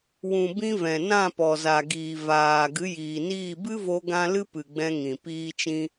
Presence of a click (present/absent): absent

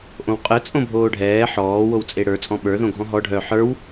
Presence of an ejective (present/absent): present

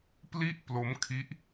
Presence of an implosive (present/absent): absent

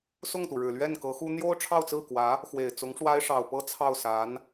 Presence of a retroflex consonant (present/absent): present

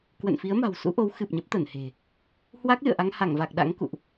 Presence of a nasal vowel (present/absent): absent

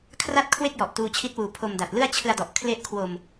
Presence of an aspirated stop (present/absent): present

